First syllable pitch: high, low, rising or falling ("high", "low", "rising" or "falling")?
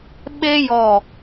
high